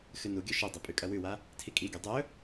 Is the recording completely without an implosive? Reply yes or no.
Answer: yes